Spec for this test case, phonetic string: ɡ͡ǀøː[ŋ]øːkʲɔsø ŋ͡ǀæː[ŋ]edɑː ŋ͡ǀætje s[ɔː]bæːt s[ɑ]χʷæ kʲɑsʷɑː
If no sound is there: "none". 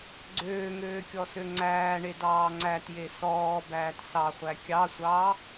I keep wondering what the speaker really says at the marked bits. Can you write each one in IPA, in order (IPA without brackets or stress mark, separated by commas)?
ŋ, ɳ, ɔː, ɑ